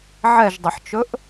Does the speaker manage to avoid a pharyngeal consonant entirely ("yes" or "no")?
no